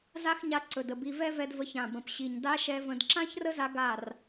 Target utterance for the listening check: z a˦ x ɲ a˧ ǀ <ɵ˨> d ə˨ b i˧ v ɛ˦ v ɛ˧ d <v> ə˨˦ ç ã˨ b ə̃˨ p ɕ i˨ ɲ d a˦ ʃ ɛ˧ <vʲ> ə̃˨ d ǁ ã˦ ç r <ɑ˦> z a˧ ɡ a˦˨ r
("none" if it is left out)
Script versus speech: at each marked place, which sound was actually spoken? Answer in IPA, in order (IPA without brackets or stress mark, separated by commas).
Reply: ɵ˨, v, v, ə˦